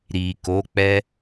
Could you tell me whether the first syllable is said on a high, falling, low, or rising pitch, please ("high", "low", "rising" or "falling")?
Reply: low